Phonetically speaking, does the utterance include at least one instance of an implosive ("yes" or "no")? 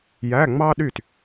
yes